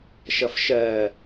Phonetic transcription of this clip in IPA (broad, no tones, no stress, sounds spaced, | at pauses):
ʃ ʌ f ʃ ɜ